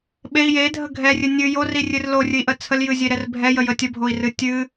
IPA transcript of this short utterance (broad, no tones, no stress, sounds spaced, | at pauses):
ɓ e i̯ j e dʱ ə ɡʱ ɛ rʲ ɨ nʲ ɨ j o r i rʲ ɨ r l o rʲ ɨ i̯ ʔ ə t͡sʰ ə l j ɨ zʲ e ɾ ɛ r bʱ ɛ j ə j ə tʲ ə bʱ o i̯ r ɨ tʲ ɨ